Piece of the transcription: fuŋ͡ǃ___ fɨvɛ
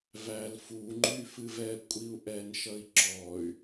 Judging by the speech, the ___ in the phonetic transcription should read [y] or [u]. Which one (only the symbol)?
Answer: y